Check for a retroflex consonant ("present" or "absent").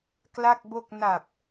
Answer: absent